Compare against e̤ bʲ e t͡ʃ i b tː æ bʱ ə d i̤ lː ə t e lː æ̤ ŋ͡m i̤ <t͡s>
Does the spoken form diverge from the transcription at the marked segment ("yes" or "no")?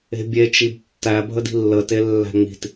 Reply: yes